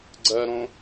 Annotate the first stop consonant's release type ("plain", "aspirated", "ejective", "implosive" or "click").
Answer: click